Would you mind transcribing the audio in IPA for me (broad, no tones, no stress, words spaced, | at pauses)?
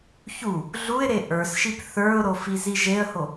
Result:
çu | ɮuɪ̯ɾe ʔə˞sʃip θə˞ʊ̯ɾo fiziʒeə̯ho